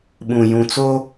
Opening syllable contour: low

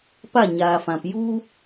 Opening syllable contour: falling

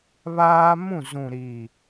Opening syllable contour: high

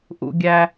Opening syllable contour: low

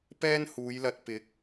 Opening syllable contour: high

